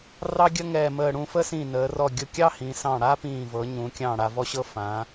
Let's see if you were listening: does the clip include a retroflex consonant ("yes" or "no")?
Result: yes